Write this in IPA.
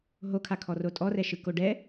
ɦokʰakʰɔ rotʼɔrɛʃɯ koɖɛ

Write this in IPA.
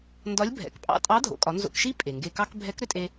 ndɒ˧˥lʲ bʱɛ̰˩k pʼɑ̰˧tʼɑ˧˥dʱo̰˩˧kʼɒ˩˧ nzo̰˧kʃi˥ pʼe˩ŋɡe˧kɑ˥k bʱɛ˧˥kɾʏ˧tʼe˧

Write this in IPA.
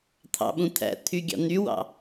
t̪ʰɑ̰ɓũ t̪ʰæ̰t̪ʰyɡʲɑ̰ n̪ywɑ̰

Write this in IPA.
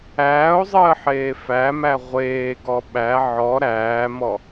æːo̯zˤəːħeː fæmæ ʁʷeːɡɔ ɓæ ʕɔ ɾæːmɔ

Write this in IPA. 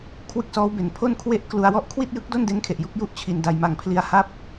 kʰwɯ˦˥k̚sɔː˦˥wbe˩˦n pʰo˥˩nkʰwe˥˩ʔ klu˧a̯wɔ˥˩ʔ kʰwi˥˩t̚jɯ˦˥k̚do˥˩n de˦˥nkʰe˨˩ʔju˥˩k̚ ju˥˩ʔt͡ɕʰi˧nda˧j ma˨˩ŋpʰli˧a̯ha˥˩p̚

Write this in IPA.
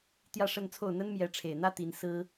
t̪jä˥˧ʂə˥˧nt͡sʰo˥˩ʊ̯ n̪ə˥nmjɛ˧˥ʈ͡ʂʰe˨˩ɪ̯n̪ä˥ t̪i˧˥n sɹ̩˥

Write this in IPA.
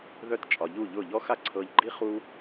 ðœ˧t t͡ʃʼɒ˨ʎu˦˨ʎʊ˦˨ʎɔ˦ xa˦ǀʰɤ˧ʎɡ͡ǃi˦ χu˧

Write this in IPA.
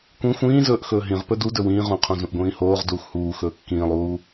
kʷĩ xʷĩːzɵːʔ xɵːɦĩʁpɵ dudɵ wĩːʁũqʰõ zũʔɡʷĩːhoːʁ duːxhuːxɵː kːĩːlˠuː

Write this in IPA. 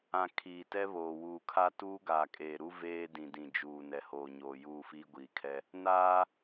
ã˨ kʰiː˨tɛ˦βoː˨ wuː˨kʰa˦ tuː˦ɡaː˨kʼeː˨ɾu˦ veː˦ dĩ˨dĩ˨ d͡ʒuː˨ nɛ˨hoː˨ɲoː˨ juː˦˨fiː˦ ɡʷiː˨kʰɛ˦ | naː˦

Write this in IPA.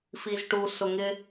fizʈu sʊŋɪ

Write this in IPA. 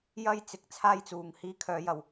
jɐ˥jt͡sɪ˨˥k̚ t͡sʰaː˥jt͡suː˨ŋ hiː˧kʰœː˨˧ jɐ˨w

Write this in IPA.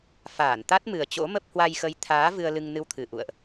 faː˧˩nt̪a˦˥t̚mɨ˨˩ə̯ t͡ɕo̰˧˥mə˦˥p̚ hwa˧jxə˨˦jt̪ʰaː˨˦ vɨ˧ə̯lɨ˧ŋnɨ˧wt̪ʰɨ˧˩ ʔṵ˧˨ə̯ʔ

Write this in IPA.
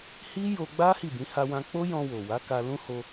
hi˦jo˧ɡ͡ba˦ hi˦˨bĩ˨˦ ha˧wã˧ k͡po˦jɔ̃˧wo˨wa˨˦ ka˧lũ˦ho˧

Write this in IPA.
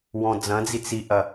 wɔ̃d͡zɐ̃d͡zi t͡siʔɐ

